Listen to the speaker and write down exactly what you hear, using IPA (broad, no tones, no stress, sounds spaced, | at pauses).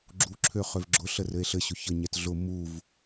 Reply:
ɡ͡ǁ u ǁʰ ø χ ø v ɡ͡ǁ ʊ ɬ ə r ɘ e̯ ɬ ɘ ɕ ʊ ç ə ɲ ɛ t ɮ ʊ m u v